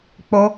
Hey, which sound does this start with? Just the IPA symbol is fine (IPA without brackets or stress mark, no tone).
k͡p